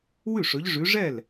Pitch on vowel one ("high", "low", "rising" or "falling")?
falling